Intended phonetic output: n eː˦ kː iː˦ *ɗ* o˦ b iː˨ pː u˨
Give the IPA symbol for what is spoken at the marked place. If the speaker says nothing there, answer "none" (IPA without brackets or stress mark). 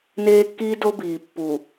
d